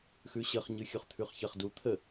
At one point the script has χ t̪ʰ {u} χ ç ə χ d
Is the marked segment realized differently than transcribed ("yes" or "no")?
yes